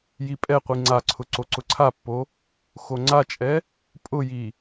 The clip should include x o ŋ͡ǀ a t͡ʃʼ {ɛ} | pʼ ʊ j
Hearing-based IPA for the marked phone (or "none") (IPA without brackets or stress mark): ɛ